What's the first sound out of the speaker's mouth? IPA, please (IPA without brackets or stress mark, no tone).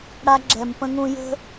ɽ